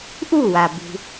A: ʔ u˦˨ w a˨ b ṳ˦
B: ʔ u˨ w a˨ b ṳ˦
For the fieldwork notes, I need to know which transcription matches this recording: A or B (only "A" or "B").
A